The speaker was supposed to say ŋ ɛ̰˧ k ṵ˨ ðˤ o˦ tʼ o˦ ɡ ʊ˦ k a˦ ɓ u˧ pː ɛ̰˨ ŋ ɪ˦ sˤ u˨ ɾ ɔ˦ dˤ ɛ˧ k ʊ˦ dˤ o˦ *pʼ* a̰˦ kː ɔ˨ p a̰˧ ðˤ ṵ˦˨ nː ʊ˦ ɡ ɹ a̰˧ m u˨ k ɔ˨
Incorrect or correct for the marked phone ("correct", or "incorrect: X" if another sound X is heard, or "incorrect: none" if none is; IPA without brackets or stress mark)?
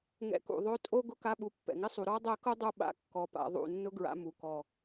incorrect: ɓ